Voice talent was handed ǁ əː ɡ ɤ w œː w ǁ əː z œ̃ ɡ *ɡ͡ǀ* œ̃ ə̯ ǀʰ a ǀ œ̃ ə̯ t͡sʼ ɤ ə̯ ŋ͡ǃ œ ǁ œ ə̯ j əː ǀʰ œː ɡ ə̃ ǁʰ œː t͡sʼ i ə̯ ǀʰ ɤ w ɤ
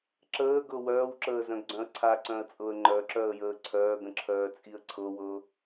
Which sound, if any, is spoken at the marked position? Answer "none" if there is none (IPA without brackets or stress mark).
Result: ɡ͡ǀ